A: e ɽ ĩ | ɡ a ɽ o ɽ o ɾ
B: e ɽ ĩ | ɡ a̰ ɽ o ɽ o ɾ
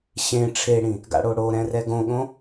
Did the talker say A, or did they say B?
B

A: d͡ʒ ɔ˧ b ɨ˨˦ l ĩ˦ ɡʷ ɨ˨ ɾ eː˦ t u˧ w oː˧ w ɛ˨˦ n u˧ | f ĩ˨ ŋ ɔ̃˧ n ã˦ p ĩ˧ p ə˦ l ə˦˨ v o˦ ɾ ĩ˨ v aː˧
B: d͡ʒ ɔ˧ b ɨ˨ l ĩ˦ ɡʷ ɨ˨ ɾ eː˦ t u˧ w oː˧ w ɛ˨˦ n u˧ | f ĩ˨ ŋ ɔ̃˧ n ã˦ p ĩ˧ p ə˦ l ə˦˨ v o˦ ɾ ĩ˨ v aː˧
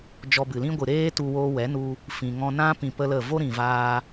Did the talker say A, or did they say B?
B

